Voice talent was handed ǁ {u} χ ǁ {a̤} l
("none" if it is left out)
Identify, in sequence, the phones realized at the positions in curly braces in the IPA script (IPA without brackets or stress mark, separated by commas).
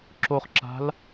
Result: o, a̤